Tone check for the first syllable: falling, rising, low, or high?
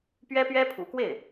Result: high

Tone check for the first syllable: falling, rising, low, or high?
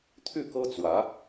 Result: falling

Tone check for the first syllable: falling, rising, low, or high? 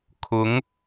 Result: rising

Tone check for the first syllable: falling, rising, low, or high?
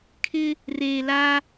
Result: high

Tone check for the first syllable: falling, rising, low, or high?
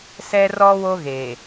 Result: high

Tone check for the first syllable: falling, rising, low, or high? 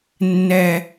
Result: low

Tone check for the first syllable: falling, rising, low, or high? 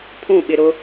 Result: falling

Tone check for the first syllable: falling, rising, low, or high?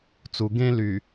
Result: low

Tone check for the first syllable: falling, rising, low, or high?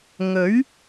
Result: rising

